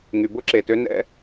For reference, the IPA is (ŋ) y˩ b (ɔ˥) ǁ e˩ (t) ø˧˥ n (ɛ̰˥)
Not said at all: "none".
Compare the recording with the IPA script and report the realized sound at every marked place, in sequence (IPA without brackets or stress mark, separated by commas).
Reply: ŋ, ʊ˥, t, ɛ̰˥